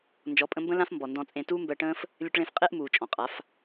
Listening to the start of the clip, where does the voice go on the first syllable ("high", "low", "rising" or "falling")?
rising